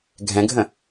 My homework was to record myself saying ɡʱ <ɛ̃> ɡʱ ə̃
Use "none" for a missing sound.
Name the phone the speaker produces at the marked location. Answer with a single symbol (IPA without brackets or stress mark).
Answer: ɛ̃